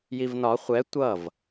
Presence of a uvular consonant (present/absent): present